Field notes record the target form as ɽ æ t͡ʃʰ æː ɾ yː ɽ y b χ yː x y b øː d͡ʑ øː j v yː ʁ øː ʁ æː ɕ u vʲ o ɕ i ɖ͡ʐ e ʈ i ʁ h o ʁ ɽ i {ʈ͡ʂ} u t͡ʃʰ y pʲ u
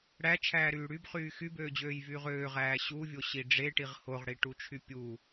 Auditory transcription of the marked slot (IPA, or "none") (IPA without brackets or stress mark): ʈ